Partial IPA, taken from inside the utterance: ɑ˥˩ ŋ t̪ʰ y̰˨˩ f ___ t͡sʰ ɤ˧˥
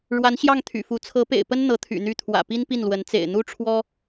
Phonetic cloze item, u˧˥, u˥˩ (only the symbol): u˧˥